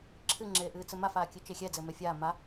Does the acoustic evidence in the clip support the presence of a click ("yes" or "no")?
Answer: yes